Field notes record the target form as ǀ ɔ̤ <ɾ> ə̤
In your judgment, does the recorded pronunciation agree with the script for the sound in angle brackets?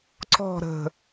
yes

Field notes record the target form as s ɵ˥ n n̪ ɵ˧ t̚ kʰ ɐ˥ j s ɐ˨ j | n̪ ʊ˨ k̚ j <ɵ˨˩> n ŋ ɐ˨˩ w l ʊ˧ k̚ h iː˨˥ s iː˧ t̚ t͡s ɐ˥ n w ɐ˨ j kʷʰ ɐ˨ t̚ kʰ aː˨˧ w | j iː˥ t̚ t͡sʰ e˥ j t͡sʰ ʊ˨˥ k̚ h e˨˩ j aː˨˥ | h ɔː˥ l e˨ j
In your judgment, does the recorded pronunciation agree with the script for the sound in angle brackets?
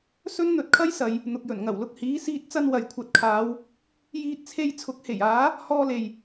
yes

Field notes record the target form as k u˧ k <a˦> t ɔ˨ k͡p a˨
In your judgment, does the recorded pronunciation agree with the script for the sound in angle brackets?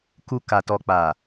no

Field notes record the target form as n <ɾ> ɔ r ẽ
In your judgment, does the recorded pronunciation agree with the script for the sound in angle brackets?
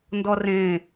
no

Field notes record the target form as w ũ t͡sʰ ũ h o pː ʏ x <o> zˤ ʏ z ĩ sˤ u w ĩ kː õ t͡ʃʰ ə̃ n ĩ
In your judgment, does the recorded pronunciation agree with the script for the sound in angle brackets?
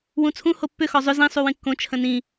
no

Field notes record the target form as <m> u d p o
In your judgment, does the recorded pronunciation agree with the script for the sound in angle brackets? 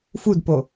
no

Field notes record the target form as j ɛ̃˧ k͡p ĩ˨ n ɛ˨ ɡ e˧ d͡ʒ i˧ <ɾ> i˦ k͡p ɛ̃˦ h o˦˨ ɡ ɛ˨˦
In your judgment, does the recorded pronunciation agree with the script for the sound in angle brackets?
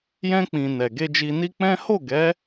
no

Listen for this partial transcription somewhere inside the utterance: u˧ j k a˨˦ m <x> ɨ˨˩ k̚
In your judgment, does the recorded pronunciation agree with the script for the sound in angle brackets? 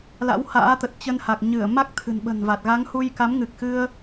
no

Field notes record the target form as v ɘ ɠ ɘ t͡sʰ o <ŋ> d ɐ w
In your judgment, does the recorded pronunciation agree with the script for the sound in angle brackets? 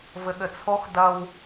no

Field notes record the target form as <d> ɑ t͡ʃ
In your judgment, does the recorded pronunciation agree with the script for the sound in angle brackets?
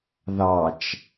no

